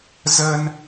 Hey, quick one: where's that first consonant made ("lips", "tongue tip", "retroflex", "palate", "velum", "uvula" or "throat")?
tongue tip